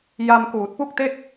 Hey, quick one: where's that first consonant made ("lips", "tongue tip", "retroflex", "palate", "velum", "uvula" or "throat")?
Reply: palate